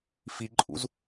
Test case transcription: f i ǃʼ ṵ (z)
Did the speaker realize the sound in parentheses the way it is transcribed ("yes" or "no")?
yes